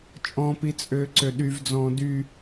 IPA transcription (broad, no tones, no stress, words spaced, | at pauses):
t͡ʃʼɔ̃pit͡sʼøːǀø ɗyvd͡zɔ̃ː dy